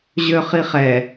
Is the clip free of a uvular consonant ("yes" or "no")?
no